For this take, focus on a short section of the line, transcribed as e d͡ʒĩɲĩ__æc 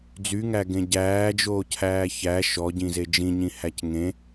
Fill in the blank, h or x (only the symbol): h